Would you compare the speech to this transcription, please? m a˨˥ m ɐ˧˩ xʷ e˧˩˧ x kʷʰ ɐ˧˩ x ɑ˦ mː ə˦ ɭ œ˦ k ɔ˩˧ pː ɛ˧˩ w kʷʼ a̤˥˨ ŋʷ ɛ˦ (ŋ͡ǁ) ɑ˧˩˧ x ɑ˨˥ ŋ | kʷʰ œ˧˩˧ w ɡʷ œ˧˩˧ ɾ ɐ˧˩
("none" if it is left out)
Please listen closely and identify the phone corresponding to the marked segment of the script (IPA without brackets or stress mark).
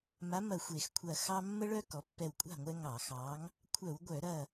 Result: ŋ